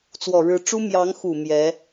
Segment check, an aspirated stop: absent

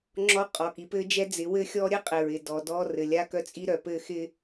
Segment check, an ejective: present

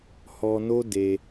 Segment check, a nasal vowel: absent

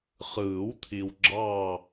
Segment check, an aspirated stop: present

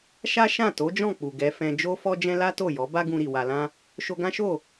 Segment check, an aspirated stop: absent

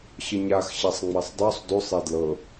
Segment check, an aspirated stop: absent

